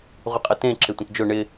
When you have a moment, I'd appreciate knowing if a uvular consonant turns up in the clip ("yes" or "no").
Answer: yes